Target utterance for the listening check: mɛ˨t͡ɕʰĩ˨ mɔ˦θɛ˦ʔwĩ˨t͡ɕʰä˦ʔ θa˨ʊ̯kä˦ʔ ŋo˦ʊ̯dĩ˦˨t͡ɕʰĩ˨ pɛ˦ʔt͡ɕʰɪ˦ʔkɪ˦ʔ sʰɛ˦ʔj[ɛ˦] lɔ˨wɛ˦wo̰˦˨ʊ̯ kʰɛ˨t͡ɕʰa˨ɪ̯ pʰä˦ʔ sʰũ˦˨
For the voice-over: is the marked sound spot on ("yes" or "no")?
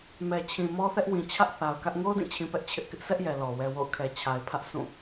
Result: no